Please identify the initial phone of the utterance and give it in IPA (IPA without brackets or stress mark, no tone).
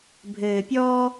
bʱ